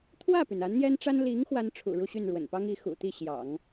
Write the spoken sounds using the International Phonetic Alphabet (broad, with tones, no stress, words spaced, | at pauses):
t̪ʰwä˥˩py˩n a˧˥nn̪jɛ˥nʈ͡ʂa˥n li˧˥ŋ xwa˥nʈ͡ʂʰṵ˨˩ɻu˥˧ɕy˥˩n ɻwə̰˨˩npɑ˥ŋi˧˥ xṵ˨˩t̪i˥˩ ɕjɑ̰˨˩˦ŋ